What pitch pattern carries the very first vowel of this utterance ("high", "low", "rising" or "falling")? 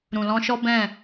low